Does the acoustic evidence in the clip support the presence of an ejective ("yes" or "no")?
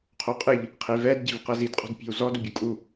yes